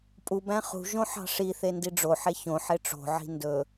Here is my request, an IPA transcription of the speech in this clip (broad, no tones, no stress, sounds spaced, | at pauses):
pʼ u b æ̃ χ ṳ ʒ õ ħ ɑ̤ ʂ i θ e n d i ɖ͡ʐ o ħ e ç õ ħ e ʈ͡ʂ o̤ ʕ i̤ n d ɵ